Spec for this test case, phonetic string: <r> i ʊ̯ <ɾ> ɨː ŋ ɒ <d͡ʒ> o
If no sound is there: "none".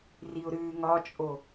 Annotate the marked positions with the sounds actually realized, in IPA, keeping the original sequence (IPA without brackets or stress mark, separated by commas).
r, ɾ, t͡ʃʼ